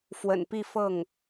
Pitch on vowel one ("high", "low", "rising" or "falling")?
low